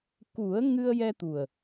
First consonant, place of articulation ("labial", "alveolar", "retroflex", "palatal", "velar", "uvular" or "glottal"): velar